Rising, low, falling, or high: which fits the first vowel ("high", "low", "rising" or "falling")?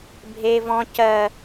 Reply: high